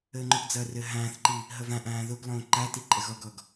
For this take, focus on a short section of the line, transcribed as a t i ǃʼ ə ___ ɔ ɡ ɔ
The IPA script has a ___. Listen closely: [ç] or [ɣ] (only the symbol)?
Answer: ɣ